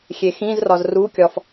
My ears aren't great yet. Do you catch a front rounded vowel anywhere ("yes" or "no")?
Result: no